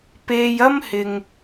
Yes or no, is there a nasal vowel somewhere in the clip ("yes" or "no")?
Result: no